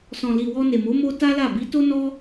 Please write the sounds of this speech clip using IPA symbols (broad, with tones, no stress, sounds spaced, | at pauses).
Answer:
s ɔ̃˨ l i˨ w ɔ˧ n e˨ m o˨˦ m o˦ t a˦ l a˦˨ b i˨˦ t o˦ n ɔ˦